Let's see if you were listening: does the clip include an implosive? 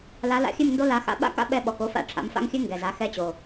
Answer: yes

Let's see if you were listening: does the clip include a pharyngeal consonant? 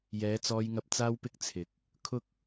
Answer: no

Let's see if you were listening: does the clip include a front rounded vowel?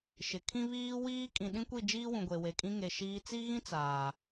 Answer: no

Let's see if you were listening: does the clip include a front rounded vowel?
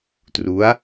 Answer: no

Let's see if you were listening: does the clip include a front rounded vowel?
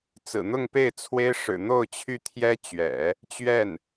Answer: yes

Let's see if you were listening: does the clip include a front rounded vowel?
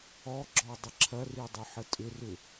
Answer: yes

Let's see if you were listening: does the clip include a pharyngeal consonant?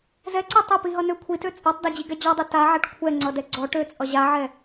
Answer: yes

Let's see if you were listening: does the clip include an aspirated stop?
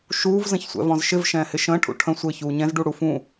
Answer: yes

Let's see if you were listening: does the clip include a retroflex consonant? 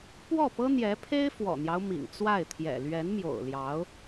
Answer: no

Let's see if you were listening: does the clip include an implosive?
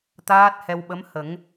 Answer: yes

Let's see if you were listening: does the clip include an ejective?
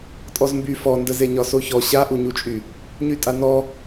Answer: yes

